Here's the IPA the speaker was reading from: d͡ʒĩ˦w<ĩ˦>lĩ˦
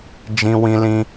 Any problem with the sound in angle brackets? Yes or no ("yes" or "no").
no